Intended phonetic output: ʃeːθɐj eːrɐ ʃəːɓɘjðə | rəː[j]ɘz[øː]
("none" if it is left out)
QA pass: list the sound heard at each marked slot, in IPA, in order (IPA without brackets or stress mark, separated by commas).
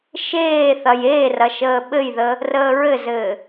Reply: ɹ, ɘː